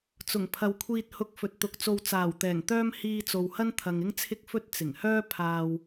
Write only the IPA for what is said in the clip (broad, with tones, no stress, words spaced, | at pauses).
t͡sʊ˨˩ŋpʰɐ˨wkʷʰiː˧t̚ hʊ˧k̚ fɵ˨t̚t̪ʊ˨˥k̚t͡so˧w t͡saː˨˩wt̪ɛː˨˩ŋt̪œː˥m hiː˧t͡so˨whɐ˥nt̪ʰɐ˨ŋ ɪ˥ŋt͡sʰɪ˥k̚fɵ˥t̚ t͡sɪ˨˩ŋhœː˥ pʰaː˧w